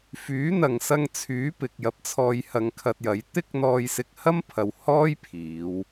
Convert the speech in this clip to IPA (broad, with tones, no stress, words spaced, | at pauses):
fyː˨˥n̪ɐ˨ŋ sɐ˧ŋt͡sʰyː˨˥ pɪ˨k̚jɐ˧p̚t͡sʰɔː˧jhɐ˧ŋ kʰɐ˧t̚jɐ˨˥j t̪ɪ˥k̚ n̪ɔː˧jsɪ˧k̚ hɐ˥mpʰɐ˨w hɔː˥jpʰiː˨˧w